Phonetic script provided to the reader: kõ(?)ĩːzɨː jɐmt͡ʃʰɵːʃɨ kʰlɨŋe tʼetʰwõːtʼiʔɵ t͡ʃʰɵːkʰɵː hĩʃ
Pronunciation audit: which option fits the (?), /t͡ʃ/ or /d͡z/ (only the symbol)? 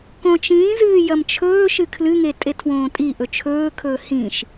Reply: t͡ʃ